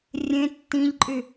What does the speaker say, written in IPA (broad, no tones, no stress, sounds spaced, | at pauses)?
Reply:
rʲ ẽ tː ĩ ʎ ǃʼ y